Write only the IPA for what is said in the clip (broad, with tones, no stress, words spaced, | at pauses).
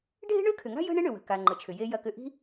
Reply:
ɖʱe̤˥ɳø˥kʰʏ˩ŋa̤˥ jə̤˥ɳɪ˥ ɳʏ˩wə̤˩ ka˩ ŋ͡ǃə˩t͡ʃʰʏ˩je˧ jɐ˧kʏ˧ ʔi̤˥